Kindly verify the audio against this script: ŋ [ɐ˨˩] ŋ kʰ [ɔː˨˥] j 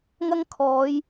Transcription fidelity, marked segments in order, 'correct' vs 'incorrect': incorrect, incorrect

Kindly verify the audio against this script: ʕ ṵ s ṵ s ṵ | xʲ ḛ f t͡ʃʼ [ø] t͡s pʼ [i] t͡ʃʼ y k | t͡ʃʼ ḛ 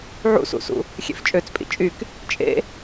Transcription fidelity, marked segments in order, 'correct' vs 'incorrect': correct, incorrect

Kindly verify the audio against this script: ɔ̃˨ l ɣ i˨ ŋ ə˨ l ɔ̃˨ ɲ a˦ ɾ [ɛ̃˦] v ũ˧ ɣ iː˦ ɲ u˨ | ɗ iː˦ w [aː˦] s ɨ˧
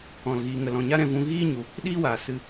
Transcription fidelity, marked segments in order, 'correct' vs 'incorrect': incorrect, incorrect

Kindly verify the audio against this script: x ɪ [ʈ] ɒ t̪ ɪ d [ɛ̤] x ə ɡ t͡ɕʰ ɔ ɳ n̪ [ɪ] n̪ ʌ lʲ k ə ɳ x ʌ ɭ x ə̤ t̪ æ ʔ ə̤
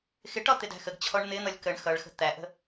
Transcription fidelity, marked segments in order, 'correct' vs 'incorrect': correct, incorrect, correct

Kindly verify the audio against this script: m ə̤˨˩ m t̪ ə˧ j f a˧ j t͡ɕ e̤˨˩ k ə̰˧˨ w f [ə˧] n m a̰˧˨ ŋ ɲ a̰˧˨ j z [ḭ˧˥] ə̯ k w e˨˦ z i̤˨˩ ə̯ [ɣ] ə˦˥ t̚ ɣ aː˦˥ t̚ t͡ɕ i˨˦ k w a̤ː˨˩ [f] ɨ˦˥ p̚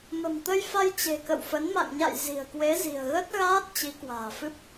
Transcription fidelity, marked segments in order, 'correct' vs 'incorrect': incorrect, incorrect, correct, correct

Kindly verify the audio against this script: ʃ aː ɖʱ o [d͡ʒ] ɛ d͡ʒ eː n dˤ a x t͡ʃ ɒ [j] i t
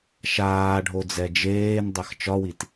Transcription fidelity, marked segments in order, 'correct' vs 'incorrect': incorrect, incorrect

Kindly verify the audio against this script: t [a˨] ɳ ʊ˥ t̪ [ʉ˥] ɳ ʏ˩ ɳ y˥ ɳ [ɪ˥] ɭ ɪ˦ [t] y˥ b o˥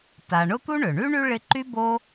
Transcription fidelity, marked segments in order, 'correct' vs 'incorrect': correct, incorrect, incorrect, incorrect

